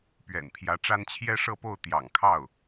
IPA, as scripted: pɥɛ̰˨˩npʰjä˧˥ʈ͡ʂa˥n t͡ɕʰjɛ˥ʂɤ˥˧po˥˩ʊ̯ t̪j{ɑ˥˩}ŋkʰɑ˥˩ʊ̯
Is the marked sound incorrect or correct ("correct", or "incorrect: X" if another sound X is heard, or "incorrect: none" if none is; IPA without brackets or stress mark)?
incorrect: ɑ̰˨˩